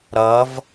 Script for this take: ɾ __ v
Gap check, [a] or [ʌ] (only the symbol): ʌ